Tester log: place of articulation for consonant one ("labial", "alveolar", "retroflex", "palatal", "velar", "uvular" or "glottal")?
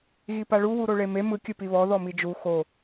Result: velar